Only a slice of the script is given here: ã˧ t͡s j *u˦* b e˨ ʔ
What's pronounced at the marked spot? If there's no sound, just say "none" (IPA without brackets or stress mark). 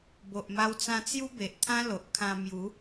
u˦